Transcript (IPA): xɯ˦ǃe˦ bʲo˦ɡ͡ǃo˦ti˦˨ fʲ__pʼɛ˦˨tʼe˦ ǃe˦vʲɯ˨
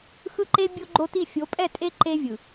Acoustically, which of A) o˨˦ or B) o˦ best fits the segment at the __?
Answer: A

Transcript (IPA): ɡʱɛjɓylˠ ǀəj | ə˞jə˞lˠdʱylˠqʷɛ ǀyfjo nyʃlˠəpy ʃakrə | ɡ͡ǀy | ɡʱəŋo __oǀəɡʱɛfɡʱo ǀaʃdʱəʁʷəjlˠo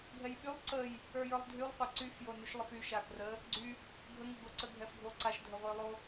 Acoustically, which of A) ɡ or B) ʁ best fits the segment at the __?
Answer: A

